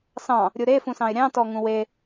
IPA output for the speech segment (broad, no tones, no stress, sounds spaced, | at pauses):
s ɑ̃ | ɾʲ u ɾ e f ũ s ɑ̃ ɪ̯ ɾʲ ɑ̃ t ɔ ŋ ũ w e